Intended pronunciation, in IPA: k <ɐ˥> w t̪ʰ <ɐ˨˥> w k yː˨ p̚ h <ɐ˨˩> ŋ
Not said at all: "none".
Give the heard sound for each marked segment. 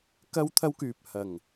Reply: ɐ˥, ɐ˥, ɐ˨˩

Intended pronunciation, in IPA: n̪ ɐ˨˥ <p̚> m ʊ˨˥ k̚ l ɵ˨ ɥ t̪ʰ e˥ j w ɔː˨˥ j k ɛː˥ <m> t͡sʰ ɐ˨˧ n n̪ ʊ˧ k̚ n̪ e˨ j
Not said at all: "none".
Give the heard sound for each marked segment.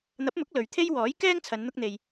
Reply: p̚, ŋ

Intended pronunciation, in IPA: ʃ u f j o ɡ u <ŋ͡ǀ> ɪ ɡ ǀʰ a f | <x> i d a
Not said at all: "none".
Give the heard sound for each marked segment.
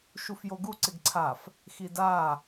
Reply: ǀ, x

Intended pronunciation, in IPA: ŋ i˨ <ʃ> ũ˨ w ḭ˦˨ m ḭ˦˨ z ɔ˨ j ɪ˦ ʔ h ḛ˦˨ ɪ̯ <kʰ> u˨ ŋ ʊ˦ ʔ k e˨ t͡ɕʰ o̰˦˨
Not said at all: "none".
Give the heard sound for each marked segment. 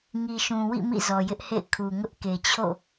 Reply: ʃ, kʰ

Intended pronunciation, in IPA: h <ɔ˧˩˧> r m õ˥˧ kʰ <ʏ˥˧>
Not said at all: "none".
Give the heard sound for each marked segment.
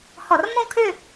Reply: ɔ˧˩˧, ʏ˥˧

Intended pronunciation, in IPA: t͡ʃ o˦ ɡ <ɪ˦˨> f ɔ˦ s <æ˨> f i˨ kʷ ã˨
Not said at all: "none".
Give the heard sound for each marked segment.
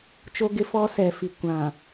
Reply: ɪ˦, ɛ˨

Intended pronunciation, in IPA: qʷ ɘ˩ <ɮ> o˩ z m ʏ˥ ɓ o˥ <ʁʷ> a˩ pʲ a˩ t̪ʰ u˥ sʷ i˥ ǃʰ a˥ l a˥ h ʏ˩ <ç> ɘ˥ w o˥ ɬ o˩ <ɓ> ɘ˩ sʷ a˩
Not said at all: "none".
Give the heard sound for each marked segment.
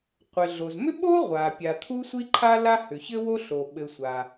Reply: ɮ, ʁʷ, ç, ɓ

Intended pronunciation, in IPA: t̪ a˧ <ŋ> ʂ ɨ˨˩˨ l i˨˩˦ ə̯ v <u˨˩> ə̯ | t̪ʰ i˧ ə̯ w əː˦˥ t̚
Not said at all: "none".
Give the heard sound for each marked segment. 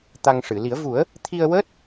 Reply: ŋ, u˨˩˦

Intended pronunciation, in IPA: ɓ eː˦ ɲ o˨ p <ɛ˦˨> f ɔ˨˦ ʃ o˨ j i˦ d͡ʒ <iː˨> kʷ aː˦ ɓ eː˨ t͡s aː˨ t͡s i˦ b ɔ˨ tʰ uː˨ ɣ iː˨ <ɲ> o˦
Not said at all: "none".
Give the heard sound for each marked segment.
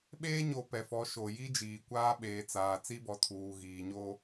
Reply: ɛ˨, iː˨, ɲ

